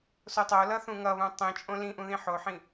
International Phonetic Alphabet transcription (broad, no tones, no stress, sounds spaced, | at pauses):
s o tˤ o l ʌ θ ũ ŋ ʌ β ũ tˤ ĩ t͡ʃʼ õ l ĩ ʔ ũ ð ĩ ħ o ħ ĩ